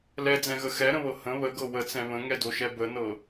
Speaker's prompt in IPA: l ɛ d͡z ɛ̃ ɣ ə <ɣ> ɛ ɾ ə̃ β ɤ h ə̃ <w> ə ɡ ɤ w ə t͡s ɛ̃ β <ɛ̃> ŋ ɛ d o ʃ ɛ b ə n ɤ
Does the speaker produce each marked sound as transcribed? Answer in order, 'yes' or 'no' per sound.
no, no, no

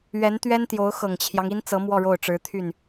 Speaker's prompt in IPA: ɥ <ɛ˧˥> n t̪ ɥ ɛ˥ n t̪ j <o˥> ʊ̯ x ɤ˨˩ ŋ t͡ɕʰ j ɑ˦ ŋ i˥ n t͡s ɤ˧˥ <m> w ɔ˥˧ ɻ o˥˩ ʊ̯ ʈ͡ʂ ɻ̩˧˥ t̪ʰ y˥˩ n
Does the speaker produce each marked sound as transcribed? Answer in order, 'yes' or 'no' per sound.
yes, no, yes

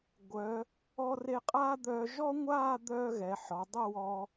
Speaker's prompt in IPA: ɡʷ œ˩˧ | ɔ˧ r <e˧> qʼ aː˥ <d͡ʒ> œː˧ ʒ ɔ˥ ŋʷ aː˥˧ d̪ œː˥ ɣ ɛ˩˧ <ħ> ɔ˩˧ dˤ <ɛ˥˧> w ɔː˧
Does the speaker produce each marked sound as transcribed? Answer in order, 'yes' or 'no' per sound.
yes, no, yes, yes

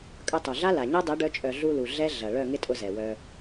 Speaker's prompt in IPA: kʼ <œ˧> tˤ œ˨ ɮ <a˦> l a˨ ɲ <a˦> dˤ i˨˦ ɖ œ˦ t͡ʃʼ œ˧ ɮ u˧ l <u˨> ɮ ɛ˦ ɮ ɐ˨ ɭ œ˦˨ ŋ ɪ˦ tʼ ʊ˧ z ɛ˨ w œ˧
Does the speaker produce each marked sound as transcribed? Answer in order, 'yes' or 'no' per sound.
yes, yes, yes, yes

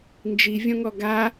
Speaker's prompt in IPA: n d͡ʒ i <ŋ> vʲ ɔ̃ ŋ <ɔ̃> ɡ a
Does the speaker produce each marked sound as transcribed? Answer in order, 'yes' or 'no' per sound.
no, no

